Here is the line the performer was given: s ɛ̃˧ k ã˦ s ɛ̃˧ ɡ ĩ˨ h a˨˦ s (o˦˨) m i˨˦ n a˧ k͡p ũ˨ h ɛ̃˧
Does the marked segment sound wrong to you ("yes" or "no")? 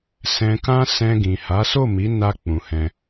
no